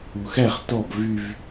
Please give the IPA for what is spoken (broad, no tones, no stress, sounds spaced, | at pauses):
u x æ χ t ɔ b v y v